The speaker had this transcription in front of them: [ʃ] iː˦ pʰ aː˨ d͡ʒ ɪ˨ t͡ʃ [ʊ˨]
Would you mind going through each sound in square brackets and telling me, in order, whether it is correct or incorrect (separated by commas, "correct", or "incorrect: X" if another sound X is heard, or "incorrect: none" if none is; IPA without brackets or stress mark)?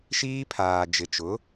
correct, incorrect: ʊ˨˦